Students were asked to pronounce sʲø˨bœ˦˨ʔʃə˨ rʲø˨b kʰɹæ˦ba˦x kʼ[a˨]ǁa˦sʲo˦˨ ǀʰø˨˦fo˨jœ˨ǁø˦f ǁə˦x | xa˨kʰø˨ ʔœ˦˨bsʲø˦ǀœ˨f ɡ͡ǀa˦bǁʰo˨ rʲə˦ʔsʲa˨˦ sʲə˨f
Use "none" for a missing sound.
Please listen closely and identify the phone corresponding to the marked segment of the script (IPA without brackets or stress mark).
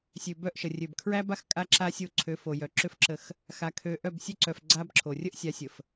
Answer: a˦